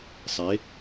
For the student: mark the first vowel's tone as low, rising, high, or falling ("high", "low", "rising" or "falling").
rising